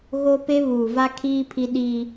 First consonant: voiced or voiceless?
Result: voiced